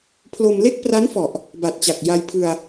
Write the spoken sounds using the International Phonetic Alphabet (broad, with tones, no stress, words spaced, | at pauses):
pʰlo˧mle˥˩k̚pra˦˥nfɔ˨˩ʔ | ba˨˩t̚t͡ɕa˨˩k̚ ja˧jpʰɯ˧a̯